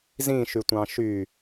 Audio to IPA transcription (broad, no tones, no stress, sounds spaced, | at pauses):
z ĩ ʃ y tʷ ɑ̃ ʃ y